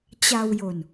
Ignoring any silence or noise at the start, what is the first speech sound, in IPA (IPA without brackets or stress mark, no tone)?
t͡ɕ